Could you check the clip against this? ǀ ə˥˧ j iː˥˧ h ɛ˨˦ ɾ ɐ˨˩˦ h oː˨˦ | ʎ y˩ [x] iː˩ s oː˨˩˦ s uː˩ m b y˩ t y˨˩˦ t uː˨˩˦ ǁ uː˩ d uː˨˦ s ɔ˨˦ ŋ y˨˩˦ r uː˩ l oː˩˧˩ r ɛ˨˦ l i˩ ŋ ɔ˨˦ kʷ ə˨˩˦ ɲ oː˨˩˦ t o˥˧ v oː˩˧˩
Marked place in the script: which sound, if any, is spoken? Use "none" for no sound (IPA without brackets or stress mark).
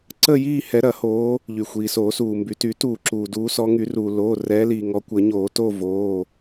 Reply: xʷ